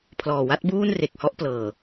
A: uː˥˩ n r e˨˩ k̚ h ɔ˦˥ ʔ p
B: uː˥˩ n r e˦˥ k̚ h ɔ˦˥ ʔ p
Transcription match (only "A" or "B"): A